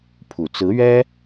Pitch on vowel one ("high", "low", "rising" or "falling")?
low